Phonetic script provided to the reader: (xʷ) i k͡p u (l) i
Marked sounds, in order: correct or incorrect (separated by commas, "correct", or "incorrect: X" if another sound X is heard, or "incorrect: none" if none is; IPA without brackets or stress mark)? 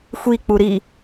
correct, incorrect: ɾ